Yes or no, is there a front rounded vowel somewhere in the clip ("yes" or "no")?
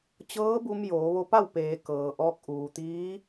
no